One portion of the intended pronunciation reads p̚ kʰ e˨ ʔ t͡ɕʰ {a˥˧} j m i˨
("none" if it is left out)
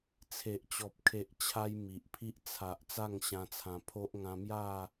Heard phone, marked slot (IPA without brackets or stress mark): a˧